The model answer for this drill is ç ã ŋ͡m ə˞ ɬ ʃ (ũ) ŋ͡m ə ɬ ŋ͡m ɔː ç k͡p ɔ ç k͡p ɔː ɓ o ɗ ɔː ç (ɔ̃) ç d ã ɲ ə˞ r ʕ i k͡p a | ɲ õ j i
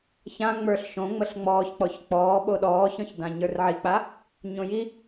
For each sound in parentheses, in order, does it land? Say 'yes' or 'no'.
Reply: no, yes

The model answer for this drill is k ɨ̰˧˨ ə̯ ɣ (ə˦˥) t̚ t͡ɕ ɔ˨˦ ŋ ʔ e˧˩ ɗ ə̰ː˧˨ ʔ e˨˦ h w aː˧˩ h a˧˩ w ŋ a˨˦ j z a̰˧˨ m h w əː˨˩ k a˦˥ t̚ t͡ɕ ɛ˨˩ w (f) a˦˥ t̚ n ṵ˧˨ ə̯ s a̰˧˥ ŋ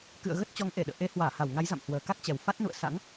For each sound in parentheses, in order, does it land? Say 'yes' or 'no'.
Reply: yes, yes

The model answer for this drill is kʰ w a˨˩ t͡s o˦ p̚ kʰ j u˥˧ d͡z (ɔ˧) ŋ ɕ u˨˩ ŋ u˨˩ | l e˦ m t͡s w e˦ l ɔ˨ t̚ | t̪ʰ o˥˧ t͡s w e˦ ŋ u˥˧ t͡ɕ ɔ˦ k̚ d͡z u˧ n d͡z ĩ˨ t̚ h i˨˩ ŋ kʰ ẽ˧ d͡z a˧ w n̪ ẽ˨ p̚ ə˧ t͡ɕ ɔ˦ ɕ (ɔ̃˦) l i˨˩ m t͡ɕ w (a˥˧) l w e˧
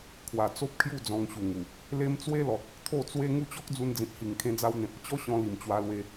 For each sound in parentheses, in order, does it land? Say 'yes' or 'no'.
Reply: no, no, no

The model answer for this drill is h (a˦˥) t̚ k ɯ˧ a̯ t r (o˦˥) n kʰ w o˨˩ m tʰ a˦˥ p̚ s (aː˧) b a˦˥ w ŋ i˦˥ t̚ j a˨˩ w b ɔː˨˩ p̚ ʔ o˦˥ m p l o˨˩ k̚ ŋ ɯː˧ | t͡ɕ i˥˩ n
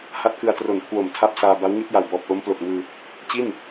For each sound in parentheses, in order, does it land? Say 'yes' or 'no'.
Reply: yes, no, yes

